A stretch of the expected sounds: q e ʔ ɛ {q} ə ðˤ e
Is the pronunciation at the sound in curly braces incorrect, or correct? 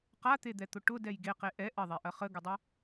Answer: incorrect